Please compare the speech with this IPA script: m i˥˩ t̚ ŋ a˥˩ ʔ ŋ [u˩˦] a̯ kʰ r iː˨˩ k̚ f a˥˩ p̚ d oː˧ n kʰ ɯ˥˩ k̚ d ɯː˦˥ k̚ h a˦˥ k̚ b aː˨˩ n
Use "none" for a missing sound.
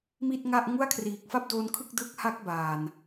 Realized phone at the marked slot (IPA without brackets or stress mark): u˥˩